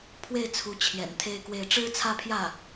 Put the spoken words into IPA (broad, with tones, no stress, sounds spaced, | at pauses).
pʰ w e˥˩ ɪ̯ t͡sʰ u˧˥ t͡ɕʰ j ɛ̰˨˩ n t̪ʰ e˥ ɪ̯ k w e˥˩ ɪ̯ ʈ͡ʂ ɻ̩˥ t͡sʰ ä˥˧ pʰ j ä˥˩